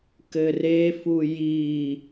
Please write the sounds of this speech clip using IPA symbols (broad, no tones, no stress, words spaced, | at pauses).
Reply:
kɘrefu ji